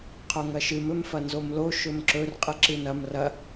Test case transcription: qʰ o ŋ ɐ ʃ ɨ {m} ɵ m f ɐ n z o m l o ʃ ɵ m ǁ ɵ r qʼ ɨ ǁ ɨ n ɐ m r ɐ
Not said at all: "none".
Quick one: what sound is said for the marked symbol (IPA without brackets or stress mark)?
m